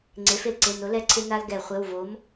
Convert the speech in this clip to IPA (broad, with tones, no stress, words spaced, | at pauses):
ŋ͡ǀe˩˥f ɪ˩lǀɪ˩˧˩nʊ˩˥lɛ˦˨ ǀʰɪ˦na˦l ɡɛ˧˩˧ χʷɪ˩˧˩wvo˩˥m